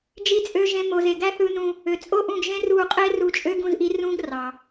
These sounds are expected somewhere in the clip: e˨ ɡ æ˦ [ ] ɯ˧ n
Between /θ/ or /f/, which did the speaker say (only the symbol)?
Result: θ